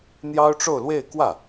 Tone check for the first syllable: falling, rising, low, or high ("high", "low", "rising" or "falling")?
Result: high